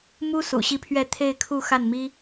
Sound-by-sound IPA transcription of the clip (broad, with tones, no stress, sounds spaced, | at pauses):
m u˥ s ṵ˨˩ ɕ i˥˧ pʰ ɥ ɛ˥˧ t̪ʰ e˥˧ ɪ̯ kʰ u˥˧ x a˥˩ n m i˥